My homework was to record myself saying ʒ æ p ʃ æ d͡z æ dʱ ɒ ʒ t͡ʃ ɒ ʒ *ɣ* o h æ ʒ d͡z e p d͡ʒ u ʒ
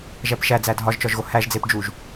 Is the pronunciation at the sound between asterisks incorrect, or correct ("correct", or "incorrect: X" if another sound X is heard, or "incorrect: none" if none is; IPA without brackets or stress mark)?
correct